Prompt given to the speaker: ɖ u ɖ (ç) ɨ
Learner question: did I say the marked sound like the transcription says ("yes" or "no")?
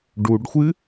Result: no